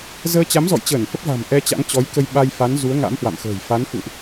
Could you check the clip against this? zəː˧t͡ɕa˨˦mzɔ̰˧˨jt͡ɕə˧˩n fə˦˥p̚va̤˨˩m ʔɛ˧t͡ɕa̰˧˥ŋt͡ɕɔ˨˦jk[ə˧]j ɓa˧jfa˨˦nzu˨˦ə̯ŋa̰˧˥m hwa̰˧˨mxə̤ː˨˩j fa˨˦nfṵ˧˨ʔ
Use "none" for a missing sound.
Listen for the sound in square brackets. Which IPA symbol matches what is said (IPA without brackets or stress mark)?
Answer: ə˧